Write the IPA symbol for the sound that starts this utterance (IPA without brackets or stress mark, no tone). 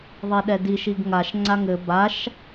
ðˤ